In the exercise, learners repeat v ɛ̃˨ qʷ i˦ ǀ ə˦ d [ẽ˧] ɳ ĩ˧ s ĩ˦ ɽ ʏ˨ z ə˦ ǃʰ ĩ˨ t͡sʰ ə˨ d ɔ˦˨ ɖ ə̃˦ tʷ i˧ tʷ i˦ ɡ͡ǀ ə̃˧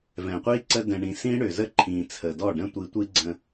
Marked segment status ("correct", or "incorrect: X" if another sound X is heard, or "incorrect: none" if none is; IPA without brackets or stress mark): incorrect: ɛ̃˧